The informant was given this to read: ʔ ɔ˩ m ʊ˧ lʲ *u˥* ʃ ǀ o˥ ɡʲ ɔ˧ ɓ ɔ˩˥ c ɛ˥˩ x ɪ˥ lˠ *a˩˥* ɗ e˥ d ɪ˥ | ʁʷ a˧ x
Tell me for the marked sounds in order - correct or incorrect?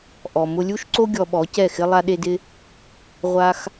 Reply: correct, incorrect: a˥

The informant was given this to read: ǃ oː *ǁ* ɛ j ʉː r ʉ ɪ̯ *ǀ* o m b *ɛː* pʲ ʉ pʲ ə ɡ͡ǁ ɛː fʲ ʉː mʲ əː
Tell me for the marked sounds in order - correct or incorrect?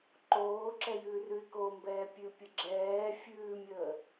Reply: correct, incorrect: k, correct

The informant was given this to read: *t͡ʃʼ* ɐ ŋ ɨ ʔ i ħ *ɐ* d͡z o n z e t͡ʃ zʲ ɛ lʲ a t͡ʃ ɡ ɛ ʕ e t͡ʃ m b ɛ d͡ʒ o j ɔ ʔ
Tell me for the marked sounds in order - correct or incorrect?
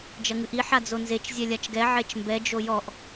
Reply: incorrect: d͡ʒ, incorrect: a

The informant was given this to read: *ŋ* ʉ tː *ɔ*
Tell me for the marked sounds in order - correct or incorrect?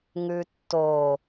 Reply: correct, incorrect: o

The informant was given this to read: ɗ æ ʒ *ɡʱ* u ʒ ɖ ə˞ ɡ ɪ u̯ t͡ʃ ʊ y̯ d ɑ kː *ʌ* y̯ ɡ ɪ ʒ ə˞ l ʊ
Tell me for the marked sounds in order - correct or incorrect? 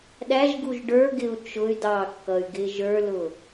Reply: incorrect: ɡ, correct

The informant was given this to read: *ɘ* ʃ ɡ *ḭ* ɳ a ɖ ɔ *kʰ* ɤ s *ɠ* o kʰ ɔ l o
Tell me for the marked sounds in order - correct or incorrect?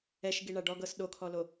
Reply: incorrect: ɛ, incorrect: i, incorrect: ɡ, incorrect: ɗ

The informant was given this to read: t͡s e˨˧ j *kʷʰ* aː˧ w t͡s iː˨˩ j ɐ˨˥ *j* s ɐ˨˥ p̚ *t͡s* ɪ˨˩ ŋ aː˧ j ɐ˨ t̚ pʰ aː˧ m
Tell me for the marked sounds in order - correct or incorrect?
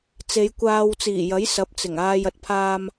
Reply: incorrect: kʷ, correct, correct

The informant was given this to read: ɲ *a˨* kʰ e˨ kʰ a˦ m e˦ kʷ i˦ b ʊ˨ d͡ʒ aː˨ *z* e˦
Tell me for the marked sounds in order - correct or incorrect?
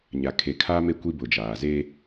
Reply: correct, correct

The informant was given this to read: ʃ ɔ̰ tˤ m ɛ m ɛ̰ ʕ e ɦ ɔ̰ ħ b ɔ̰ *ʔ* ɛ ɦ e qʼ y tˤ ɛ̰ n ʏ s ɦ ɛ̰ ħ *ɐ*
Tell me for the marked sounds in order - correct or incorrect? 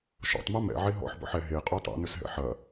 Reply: incorrect: ħ, correct

